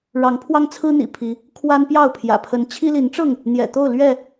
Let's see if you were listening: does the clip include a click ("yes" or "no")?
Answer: no